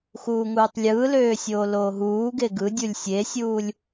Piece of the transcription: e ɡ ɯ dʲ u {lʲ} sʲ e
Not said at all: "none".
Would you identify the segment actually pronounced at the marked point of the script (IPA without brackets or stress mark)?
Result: lʲ